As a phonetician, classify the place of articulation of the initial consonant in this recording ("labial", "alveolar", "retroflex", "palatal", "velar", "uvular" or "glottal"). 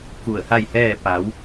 velar